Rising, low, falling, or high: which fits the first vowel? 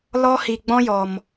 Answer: high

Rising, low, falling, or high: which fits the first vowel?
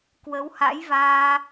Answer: rising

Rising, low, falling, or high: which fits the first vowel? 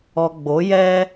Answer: low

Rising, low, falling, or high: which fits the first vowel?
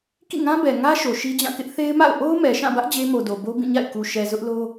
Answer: falling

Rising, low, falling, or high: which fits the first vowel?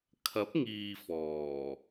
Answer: rising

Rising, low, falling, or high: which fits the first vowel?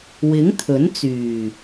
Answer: rising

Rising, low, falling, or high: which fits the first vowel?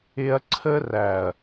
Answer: high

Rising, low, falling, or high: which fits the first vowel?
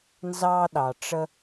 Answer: high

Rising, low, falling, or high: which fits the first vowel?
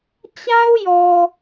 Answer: high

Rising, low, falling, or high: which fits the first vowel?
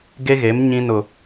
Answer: high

